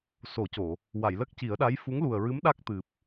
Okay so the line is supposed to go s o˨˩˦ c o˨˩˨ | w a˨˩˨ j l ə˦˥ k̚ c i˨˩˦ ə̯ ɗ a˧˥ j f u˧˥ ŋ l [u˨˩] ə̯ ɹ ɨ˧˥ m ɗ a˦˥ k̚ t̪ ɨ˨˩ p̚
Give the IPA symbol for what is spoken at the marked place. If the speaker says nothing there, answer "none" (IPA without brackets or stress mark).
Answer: u˨˩